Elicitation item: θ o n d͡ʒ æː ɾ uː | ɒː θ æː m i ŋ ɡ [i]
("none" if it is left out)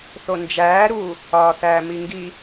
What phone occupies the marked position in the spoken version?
i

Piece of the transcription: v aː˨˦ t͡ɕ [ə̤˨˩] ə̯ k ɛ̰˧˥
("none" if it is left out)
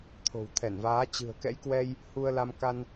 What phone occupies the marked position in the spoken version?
ɨ̤˨˩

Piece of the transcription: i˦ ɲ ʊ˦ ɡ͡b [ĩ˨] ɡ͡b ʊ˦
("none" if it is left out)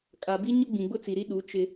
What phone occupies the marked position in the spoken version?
ĩ˨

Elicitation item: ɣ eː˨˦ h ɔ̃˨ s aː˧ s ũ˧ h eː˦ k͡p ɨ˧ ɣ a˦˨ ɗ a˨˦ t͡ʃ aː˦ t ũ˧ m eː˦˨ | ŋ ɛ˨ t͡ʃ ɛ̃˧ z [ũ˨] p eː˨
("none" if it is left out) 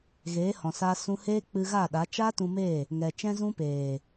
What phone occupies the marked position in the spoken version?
ũ˧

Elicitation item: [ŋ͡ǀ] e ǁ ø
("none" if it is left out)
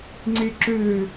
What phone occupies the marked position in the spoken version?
ŋ͡ǀ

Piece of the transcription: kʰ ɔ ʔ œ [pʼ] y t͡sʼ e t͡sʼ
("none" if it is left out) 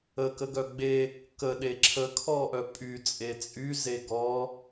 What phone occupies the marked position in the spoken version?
pʼ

